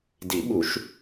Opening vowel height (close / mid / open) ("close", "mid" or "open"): close